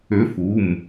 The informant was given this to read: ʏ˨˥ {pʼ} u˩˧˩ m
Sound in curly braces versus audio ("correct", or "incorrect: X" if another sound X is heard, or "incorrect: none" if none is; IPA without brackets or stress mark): incorrect: f